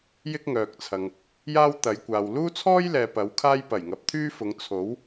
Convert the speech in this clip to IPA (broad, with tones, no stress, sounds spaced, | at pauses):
j ɪ˥ k̚ ŋ œː˨ k̚ t͡sʰ ɐ˨ ŋ | j aː˥ w t̪ ɐ˨˧ j kʷ aː˨ w l uː˥ t͡sʰ ɔː˥ j l ɛː˨ p ɐ˨˥ w kʰ aː˥ j p ɐ˨˩ j ŋ ɐ˨˥ p̚ t̪ʰ yː˥ f ʊ˨˧ ŋ t͡sʰ o˨˥ w